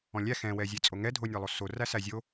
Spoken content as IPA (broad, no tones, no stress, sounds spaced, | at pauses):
ɔ̃ lʲ æ x ɛ̃ w ɛ zʲ ɛ t͡sʼ o ŋ ɛ dʱ o nʲ æ lˠ o s o r æ s æ zʲ o